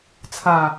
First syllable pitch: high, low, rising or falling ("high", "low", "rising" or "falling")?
low